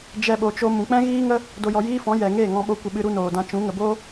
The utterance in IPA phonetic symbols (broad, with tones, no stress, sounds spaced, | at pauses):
d͡ʒ ɛ˦ ɓ o˧ t͡ʃ o˧ m ũ˨ k͡p ɛ̃˦ ɣ iː˦ ŋ ə˦ | d o˧ j ɔ˧ j iː˦ f ɔ̃˨˦ j ɛ˨ ŋ eː˦˨ ŋ ɔ̃˧ ɓ o˧ kʷ ə˧ ɓ ɨ˧ ɾ u˦ n oː˨ d ã˧ t͡ʃ ũ˨˦ ŋ ə˨ b oː˦